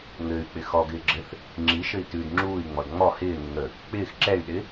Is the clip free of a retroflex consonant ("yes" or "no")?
yes